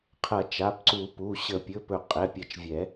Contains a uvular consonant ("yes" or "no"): yes